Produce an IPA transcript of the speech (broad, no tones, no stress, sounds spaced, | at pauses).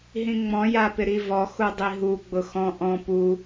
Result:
ɦ ĩ ŋ͡m ɔ̃ j a p ɪ ɾ i v ɔ x u dˤ i ɦ u ɡ͡b ʊ x ɔ̃ ʔ ɔ̃ p u